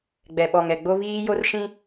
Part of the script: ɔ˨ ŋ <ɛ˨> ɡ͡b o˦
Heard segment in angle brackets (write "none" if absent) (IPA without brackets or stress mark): ɛ˨